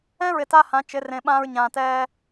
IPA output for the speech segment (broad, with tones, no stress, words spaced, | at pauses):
ɛ̃˦ɹɪ˨ ta˦hã˨˦t͡ʃɪ˨˦rẽ˨ ɓãː˧ɹɲãː˨tɛː˧